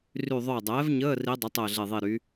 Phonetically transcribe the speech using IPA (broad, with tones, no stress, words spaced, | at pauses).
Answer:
ry˧˩ ðˤœ˧˩u̯dˤɛː˩˥vɲəː˧˥˧ ri˧˥dˤɪ˩˥ tˤəː˧˩ ɮe˧˩ðˤi˧˩ɾy˩˥